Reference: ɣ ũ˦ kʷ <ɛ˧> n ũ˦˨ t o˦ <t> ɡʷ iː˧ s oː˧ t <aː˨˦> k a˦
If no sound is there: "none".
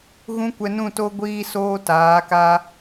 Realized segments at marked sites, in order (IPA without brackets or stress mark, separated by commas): ɛ˧, none, aː˨˦